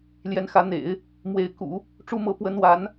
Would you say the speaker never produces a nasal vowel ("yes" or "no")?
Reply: yes